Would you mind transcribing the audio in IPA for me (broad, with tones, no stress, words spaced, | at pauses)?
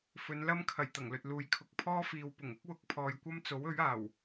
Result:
fɵ˨˧nlɐ˥mkʰɐ˨˩j t̪ɐ˨˩ŋlɵ˨t̚ luː˨j kʰʊ˨k̚ pʰɔː˥fiː˨wpʊ˨˩ŋ ʊ˥k̚wʊ˨˥k̚pʰɔː˨j kʷɐ˥mt͡so˨˥wɵ˨˥ɥaː˨˩w